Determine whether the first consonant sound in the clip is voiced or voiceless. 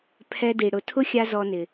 voiceless